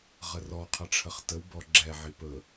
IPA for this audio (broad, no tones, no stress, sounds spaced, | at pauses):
ʁ ə r ɔ qʰ ə ʈ͡ʂʰ ə χ t ə w b ɔ ɡ͡ǁ ɛ ʕ i p ɵ